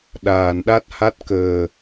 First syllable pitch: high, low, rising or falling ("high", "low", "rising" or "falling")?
low